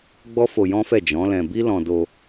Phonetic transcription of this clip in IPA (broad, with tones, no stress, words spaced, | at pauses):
ɡ͡bɔ˦fo˧jɔ̃˦fɛ˦˨ d͡ʒɔ̃˨˦lɛ̃˧bi˦ lɔ̃˧do˧